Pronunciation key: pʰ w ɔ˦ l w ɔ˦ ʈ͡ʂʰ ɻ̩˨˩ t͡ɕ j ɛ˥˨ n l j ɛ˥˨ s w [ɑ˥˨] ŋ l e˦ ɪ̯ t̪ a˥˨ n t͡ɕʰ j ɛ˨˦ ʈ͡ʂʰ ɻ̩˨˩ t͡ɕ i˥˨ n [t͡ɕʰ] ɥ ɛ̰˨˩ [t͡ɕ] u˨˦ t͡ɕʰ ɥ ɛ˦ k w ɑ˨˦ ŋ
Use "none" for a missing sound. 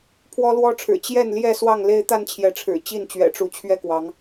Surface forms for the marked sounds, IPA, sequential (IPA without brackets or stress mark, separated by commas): ɑ˥˨, t͡ɕ, ʈ͡ʂ